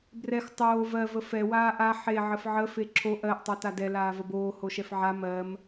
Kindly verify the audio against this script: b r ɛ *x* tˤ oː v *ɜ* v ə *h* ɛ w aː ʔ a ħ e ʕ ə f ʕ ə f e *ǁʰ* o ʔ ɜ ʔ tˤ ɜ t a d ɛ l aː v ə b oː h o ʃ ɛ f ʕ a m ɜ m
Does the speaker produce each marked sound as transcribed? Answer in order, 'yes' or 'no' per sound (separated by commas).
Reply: yes, yes, no, yes